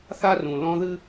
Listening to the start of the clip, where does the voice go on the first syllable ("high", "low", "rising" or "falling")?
high